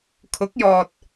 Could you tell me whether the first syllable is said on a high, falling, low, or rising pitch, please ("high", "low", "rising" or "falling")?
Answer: rising